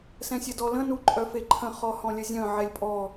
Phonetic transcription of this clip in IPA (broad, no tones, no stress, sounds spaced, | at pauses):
s ɛ̃ sʲ ə d ɔ l ə̃ n u ǃʼ œ f e ǃʰ ə̃ χ ɔ h ɔ̃ lʲ ə zʲ œ̃ ʕ ɛ lʲ pʼ ɔ